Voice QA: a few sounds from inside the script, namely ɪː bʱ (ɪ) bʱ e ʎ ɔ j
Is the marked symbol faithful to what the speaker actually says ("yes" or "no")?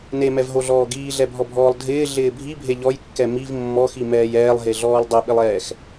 no